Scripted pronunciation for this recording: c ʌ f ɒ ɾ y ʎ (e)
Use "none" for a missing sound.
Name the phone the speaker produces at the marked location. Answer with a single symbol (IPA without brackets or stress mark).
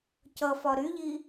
i